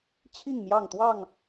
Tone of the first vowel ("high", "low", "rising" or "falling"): falling